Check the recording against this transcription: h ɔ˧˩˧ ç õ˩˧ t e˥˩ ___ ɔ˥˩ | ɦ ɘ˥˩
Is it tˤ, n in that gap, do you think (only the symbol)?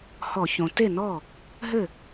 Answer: n